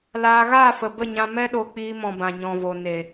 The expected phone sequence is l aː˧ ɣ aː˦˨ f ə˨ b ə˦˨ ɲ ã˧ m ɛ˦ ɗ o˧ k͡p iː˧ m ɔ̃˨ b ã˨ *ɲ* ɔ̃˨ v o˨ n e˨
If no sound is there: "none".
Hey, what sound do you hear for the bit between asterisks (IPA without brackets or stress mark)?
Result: ɲ